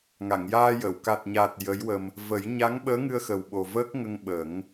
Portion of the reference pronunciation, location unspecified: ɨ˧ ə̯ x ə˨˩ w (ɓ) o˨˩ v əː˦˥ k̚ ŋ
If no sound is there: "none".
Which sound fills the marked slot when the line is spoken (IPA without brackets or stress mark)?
ɓ